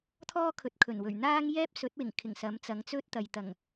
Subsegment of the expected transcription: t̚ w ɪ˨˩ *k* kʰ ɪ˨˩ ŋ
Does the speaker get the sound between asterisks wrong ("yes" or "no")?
yes